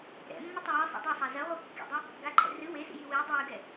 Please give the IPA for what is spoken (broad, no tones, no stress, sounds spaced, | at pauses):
ɾ ɛ̰ mː ɐ tˤ ɘ j ɘ sˤ ɛ̰ dˤ a sˤ a z ɐ ʁʷ e kː ḭ dˤ ɐ | ɡ a ǃʰ ɛ̰ r ɨ w e s ḭ j i w i dˤ ɨ w ɨ ɡ ɛ